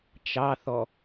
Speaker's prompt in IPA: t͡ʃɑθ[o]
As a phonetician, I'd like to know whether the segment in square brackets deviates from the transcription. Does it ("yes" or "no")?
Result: yes